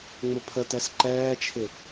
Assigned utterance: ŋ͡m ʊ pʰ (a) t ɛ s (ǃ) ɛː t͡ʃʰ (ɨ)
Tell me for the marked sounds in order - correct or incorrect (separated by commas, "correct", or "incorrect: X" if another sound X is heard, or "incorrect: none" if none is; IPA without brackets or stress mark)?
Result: incorrect: ə, correct, incorrect: ɪ